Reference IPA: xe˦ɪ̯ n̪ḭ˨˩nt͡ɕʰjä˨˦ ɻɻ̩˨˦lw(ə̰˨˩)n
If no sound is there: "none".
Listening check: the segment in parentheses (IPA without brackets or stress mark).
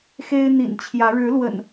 ə̰˨˩